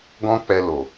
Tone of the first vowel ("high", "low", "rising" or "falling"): high